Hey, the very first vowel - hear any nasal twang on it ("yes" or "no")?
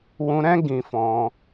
yes